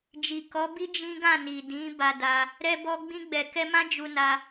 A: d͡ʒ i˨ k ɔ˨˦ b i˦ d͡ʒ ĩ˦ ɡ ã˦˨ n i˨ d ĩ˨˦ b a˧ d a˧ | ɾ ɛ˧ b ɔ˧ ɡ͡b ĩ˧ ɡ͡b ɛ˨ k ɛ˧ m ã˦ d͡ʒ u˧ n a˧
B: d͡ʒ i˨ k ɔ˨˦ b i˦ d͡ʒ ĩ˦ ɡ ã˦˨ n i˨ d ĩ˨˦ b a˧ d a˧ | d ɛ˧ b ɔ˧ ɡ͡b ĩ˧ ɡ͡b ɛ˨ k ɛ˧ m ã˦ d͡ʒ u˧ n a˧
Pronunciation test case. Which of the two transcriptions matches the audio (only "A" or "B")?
A